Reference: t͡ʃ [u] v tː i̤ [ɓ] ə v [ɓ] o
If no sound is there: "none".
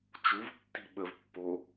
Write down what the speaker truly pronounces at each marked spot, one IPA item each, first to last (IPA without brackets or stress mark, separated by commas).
u, ɓ, pː